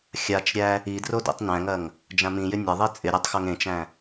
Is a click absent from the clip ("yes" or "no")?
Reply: yes